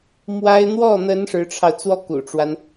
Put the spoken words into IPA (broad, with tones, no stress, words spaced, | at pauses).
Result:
mwa˥ɪ̯ n̪wɔ˥˩n̪ə˧˥n ʂɻ̩˧˥ʈ͡ʂʰɑ˧ʊ̯ t͡swɔ˥˩kṵ˨˩ʈ͡ʂwa˦n